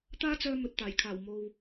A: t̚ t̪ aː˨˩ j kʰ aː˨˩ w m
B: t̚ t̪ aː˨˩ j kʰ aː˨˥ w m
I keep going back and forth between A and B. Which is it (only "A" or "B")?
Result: A